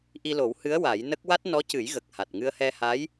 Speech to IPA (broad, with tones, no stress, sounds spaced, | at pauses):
ʔ i˧ l o˨˩˦ w h ɨ˧˥ ə̯ w a˨˩˦ j n ə˦˥ k̚ w a˦˥ t̚ n ɔ˧˥ c ɨ˨˩˦ j ɣ ə˨˩ k̚ h a˨˩ t̚ ŋ ɨ˧ ə̯ h ɛ˧ h a˧˥ j